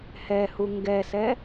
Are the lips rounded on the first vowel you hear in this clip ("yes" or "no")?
no